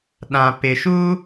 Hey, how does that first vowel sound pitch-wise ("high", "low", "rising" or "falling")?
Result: low